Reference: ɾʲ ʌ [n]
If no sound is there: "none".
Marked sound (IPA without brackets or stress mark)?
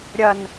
n